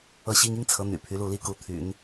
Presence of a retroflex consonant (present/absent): absent